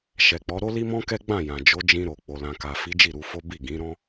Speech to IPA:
ʃɛ˨k͡pɔ˨˦ ɾo˦li˦mɔ̃˦kɛ˦ ɡ͡bã˦˨jã˨ d͡ʒo˨˦d͡ʒĩ˧ɾo˨ k͡po˨lã˨ka˨fi˨˦ d͡ʒi˦˨ɾu˧fo˦ bi˦˨ ɡĩ˨˦ɾɔ̃˦

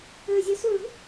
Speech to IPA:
øzʲœ suɭṳ

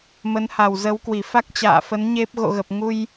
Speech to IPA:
mə˨˦nha˨˩wzə˨˦wkwi˧˩ fa˦˥k̚t͡ɕa̰ː˧˨fə˨˦n ɲe˦˥p̚ ɣo̰˧˨ɣə˨˩p̚ ŋu˧j

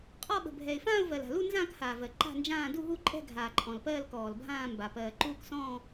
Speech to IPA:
qʼɔ˥˧ɓə̤˨bʱɛ˨ɪ̯ fãː˥˧ʊ̯vɜ˨la̤˨lu˥˧ nzãː˥˧khaː˨vɜ˨ ǃa̤˥˧nd͡ʒãː˥˧ du˥˧ɦu˥˧ǃʼɛ̤˥˧ ɡʱaː˨ǃʼɔ̃˨lpɜː˥˧l kɔː˨lbʱãː˥˧mba˨ pɜː˨ǃuː˥˧ksɔ̃ː˥˧

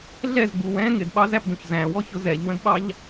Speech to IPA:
ɮɛzɡ͡bu wɛ̃ ŋɪdɓɑzæpdũç zæ̃wɔçʊ zɛʎwə̃dɓɑʎ

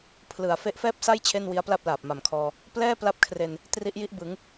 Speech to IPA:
pʰlɯ˨˩a̯ fe˦˥ʔfɛː˥˩p̚sa˥˩j t͡ɕʰe˥˩nwi˦˥a̯pla˥˩p̚laː˨˩p̚ ma˨˩mkʰɔː˧ | plɛː˥˩pla˦˥p̚kʰre˧n | tri˦˥ʔji˥˩ʔbɯ˩˦ŋ

